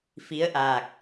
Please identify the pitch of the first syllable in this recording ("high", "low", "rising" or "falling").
rising